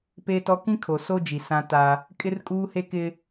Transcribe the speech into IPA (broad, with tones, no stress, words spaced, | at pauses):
peː˦tɔ˦ kĩ˦ kʰo˨so˦d͡ʒi˨ sã˦ ta˦ | kʼɪ˦rkʼuː˦he˦kɪ˦